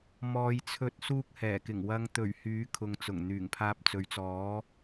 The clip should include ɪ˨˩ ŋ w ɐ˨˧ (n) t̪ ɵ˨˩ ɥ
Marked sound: incorrect: ŋ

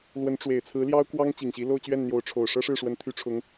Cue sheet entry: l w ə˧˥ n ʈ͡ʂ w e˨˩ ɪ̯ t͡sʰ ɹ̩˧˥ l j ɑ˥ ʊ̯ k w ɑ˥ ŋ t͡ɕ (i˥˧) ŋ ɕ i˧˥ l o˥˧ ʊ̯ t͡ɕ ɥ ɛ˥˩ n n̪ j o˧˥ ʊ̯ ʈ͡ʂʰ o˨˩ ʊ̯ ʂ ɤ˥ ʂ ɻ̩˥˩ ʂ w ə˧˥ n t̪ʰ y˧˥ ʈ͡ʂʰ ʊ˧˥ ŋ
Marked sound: incorrect: i˨˩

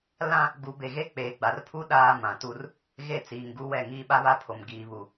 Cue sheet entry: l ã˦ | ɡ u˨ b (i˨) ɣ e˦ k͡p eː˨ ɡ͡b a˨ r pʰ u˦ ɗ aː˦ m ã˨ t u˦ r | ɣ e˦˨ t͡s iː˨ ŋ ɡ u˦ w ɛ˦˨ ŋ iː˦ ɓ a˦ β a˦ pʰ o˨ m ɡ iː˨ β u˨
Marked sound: incorrect: e˨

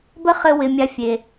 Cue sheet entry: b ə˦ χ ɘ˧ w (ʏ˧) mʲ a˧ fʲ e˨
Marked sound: incorrect: ɪ˧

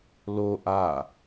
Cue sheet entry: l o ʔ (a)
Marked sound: correct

